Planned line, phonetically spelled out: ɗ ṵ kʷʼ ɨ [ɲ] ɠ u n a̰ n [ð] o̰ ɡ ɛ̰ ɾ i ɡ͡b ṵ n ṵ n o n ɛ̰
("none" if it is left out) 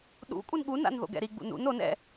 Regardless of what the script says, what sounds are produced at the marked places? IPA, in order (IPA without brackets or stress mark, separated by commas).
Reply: n, ð